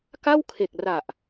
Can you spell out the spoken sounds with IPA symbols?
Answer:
k a˥˩ w kʰ e˨˩ k̚ r a˨˩ ʔ

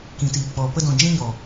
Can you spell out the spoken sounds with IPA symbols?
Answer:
k ĩ˨ t iː˨ k͡p ɔ˨ p ə˧ d ɔ̃˨ d͡ʒ ĩ˧ ɲ ɔ˨

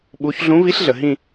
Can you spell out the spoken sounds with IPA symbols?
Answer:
ɓ u˧˥ ç ɮ ũ˧˥ v i˧˥ ɬ ɮ ə˨ ɦ ĩ˥˧

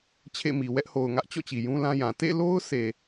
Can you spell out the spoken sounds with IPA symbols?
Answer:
t͡ɕʰ ḛ˦˨ m i˨ w ɛ˦ ʔ h o˨ ʊ̯ ŋ ä˦ ʔ t͡ɕ ɔ̰˦˨ t͡ɕ i˨ j ũ˦ l ã˦ j ã˨ t ḛ˦˨ l o˦ ʊ̯ s e˨

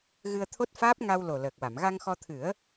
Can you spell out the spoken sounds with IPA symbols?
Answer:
ɣ ɨ˧ ə̯ t̪ʰ o˦˥ t̚ f aː˦˥ p̚ ŋ a˧ w l o˨˩ l əː˨˩ k̚ w a˨˩˨ m ɣ a˧ ŋ x ɔ˧ t̪ʰ ɨ˨˩˦ ə̯

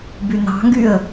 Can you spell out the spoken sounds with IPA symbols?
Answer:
b y n ɑ̤ ŋ ɡ y ə̯

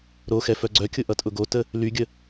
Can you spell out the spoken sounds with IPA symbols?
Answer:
ɾ o x ɛ f œ ɡ͡ǀ œ kʲ ʊ ʔ ʌ tʼ ʊ ɡ o t ə | l y ɡʲ ə

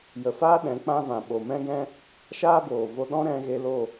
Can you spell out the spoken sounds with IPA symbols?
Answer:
j ə˨ f aː˦ ɗ ɛ̃˨˦ k͡p ã˦ v ã˨ ɓ o˨ m ɛ̃˦ ɡ ɛ̃˦ | ʃ aː˦ b oː˨ v o˧ ɗ ɔ̃˦ ɾ ɛ̃˧ ɣ e˧ l o˦˨

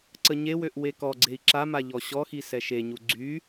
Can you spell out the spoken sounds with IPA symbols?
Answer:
ǀ ə ɲ e w ø ʔ w e k ɔ ɡ͡ǀ e i̯ ǁ a m a ʎ ɔ ɕ ɔ x i s ɛ ʃ e ɲ u ɡ͡ǀ y

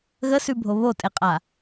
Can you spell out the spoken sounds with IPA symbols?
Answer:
ɣ ə s ʉ bʱ o β o tʼ e qʼ a

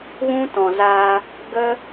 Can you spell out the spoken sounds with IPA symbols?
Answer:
ɣ ũ˦ t ɔ̃˨ z aː˧ | ɡ ə˦

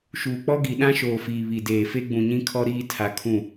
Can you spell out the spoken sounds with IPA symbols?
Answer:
ʃ uː˨ k͡p ɔ˦ ɡ i˨ ɗ ã˦ ʃ oː˨ f iː˨ β i˨ d eː˨ f e˦ ɡ͡b ũ˨ ɲ ĩ˦ kʰ ɔ˦ ɾ iː˦ tʰ a˨ kʰ ũ˦˨

